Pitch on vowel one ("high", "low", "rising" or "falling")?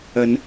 rising